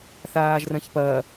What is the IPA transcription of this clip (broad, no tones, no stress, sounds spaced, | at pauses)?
θ aː ʒ r ɐ̃ ç p ɐ